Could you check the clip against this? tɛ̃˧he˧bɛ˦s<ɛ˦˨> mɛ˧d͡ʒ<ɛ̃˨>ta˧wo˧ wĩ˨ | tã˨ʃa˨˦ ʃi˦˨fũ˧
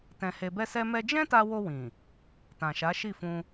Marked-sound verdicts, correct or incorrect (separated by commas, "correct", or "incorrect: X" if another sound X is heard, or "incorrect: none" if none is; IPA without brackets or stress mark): incorrect: ɛ˦, incorrect: ɛ̃˦